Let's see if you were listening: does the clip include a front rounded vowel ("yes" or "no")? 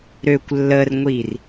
yes